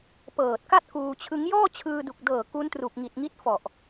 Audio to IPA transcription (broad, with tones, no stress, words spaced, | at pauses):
pɤː˨˩t̚ka˥˩t̚ kuː˧t͡ɕʰɯ˦˥ŋ jɔː˥˩t͡ɕʰɯː˧du˨˩k̚dɤː˨˩ ku˦˥ntru˨˩k̚ŋi˨˩t̚ŋi˦˥t̚ fɔ˨˩ʔ